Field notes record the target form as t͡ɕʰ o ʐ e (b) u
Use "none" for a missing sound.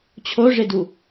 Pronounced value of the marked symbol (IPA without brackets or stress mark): d